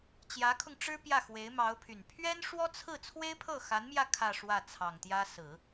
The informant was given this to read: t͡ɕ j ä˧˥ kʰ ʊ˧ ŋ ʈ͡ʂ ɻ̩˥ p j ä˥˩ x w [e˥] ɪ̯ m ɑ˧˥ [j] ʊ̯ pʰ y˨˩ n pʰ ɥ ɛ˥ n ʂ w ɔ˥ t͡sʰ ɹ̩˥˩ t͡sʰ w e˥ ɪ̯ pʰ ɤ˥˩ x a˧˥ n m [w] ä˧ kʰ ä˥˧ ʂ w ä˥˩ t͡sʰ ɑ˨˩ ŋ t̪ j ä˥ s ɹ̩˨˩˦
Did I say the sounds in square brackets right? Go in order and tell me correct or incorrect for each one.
incorrect, incorrect, incorrect

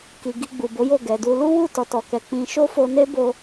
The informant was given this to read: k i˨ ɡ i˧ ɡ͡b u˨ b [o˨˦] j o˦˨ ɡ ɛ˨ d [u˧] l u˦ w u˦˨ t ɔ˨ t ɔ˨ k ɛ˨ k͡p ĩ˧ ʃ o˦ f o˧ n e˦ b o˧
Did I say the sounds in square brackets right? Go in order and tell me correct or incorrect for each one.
correct, correct

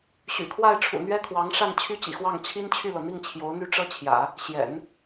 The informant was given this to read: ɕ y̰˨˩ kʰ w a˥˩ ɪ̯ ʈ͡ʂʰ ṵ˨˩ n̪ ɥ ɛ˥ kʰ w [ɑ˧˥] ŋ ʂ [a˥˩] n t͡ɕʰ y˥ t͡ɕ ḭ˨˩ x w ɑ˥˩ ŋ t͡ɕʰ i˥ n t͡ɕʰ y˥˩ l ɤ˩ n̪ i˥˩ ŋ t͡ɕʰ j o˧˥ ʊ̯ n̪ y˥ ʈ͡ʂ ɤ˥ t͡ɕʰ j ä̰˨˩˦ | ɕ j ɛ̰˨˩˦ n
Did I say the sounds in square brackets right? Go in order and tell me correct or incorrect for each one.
correct, correct

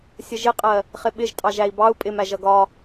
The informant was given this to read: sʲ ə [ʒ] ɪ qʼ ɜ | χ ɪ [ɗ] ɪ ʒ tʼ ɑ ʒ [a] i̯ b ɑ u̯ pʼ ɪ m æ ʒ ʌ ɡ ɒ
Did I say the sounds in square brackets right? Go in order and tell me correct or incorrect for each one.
correct, incorrect, incorrect

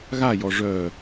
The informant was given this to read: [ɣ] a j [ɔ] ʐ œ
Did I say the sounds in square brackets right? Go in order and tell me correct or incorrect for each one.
correct, correct

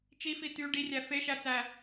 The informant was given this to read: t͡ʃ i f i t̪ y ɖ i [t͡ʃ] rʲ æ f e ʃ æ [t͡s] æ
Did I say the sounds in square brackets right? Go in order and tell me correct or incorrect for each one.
incorrect, correct

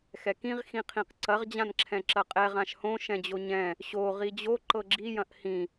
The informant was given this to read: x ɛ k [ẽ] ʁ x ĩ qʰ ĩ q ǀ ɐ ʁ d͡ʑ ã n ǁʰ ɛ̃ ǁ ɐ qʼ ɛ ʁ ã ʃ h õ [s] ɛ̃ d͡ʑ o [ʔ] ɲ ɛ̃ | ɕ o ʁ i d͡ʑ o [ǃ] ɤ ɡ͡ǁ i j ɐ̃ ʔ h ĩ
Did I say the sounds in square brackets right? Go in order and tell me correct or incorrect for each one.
incorrect, incorrect, incorrect, correct

